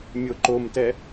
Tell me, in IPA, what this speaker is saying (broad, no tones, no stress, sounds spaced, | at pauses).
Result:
mʲ o ǃ o m t ɛ